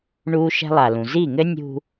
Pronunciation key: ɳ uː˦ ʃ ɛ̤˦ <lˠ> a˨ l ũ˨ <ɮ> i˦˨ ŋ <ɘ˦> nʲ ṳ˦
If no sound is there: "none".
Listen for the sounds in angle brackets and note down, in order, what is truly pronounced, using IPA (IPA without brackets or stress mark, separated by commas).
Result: lˠ, z, ɘ˦